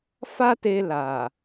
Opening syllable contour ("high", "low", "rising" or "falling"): high